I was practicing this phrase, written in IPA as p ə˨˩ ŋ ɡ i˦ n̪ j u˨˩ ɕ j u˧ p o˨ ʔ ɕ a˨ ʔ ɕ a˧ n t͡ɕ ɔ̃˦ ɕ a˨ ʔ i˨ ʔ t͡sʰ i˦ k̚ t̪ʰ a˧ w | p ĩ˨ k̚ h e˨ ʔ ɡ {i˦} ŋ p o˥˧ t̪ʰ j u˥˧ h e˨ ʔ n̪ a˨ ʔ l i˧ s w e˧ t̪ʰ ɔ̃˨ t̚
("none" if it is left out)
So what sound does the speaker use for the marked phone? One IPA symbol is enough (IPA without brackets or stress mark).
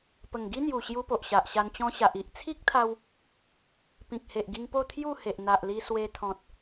i˧